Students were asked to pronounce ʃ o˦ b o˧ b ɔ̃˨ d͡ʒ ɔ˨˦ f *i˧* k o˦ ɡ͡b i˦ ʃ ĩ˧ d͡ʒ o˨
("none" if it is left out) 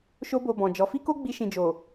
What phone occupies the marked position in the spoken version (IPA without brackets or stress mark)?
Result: i˦